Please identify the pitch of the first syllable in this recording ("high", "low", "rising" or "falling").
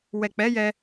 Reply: low